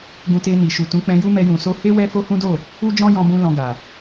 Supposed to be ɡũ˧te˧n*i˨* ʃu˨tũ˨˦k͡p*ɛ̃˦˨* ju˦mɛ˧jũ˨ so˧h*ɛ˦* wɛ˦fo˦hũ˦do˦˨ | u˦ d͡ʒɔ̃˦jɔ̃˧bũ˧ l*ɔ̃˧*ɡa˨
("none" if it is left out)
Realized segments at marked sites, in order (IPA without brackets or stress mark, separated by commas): i˨, ɛ̃˧, e˦, ɔ̃˧